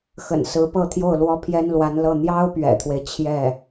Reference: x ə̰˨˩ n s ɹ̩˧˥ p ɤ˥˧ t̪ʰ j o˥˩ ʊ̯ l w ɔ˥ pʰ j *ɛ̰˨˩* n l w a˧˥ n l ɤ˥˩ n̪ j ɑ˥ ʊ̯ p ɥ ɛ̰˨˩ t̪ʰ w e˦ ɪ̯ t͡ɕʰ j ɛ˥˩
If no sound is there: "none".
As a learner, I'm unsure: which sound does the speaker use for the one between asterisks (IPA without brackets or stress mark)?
ɛ˥